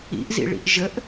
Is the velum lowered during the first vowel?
no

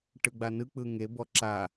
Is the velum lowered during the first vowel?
no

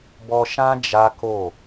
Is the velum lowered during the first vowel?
no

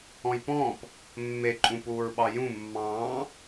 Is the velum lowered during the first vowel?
yes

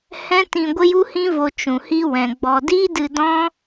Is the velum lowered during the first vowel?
yes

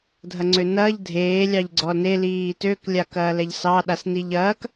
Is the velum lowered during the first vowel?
no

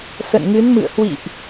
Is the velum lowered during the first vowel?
no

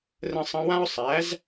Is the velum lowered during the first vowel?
yes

